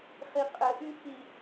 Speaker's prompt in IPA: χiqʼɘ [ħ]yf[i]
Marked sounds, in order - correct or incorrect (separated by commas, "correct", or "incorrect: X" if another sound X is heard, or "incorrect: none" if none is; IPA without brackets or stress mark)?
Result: incorrect: ʔ, correct